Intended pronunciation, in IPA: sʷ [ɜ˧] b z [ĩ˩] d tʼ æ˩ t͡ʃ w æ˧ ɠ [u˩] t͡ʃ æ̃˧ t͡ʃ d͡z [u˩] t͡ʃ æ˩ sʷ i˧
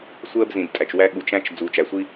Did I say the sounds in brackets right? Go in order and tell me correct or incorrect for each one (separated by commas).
correct, correct, correct, correct